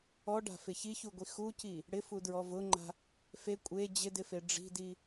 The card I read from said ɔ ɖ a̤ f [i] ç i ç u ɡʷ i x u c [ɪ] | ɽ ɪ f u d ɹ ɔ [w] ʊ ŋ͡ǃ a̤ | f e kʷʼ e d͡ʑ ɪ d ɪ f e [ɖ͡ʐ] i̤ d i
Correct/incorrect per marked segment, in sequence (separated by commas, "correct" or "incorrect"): incorrect, incorrect, incorrect, correct